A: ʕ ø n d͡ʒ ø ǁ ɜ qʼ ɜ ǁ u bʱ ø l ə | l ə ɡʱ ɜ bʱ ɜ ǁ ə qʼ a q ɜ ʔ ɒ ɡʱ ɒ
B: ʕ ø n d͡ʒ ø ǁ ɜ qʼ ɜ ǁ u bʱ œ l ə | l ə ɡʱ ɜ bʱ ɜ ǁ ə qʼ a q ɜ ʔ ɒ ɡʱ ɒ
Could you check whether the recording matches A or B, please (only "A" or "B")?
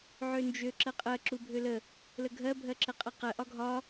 A